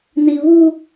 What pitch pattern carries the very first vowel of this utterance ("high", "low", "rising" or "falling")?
high